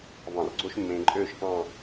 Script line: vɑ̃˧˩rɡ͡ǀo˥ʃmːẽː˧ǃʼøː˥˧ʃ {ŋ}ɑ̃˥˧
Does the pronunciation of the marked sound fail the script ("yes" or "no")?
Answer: yes